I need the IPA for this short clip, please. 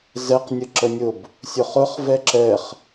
z ɛ q nʲ ə ǁ ə nʲ ʊ b | sʲ ʊ χ ʊ χ v ɛ ǁ ɛ χ

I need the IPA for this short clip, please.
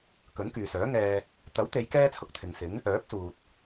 k ɵ˨˥ n k yː˨ s œː˨˥ ŋ ɛː˧ | t̪ ɐ˨˥ w t̪ e˨˧ j k ɛː˥ t͡sʰ ʊ˧ k̚ t̪ʰ ɪ˨ ŋ s ɪ˨˥ ŋ | œː˨˥ p̚ s uː˨ t̚

